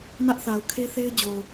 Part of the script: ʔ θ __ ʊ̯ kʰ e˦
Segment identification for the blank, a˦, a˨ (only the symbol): a˨